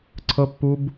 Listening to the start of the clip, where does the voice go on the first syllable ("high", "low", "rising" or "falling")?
high